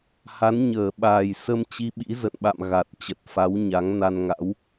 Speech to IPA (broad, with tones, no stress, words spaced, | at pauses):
ha˨˦nɲəː˧˩ɓaː˨˩j sə˧mt͡ɕi˧ɓḭ˧˥ zə̰˧˨nɓa̰˧˨m ɣa˨˩t̚ t͡ɕə˨˩t̚ fa˨˦wɲa˨˦ŋ na˧nŋa̰˧˥w